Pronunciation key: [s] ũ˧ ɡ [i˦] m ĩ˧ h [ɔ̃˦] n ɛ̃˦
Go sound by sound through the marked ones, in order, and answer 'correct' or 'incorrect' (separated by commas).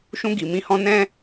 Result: incorrect, incorrect, incorrect